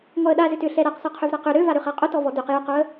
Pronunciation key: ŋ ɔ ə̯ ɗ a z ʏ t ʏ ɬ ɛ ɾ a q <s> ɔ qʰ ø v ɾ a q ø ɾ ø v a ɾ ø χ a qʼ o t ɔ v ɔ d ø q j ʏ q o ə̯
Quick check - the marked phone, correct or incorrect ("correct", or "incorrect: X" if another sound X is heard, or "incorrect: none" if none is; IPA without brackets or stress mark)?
correct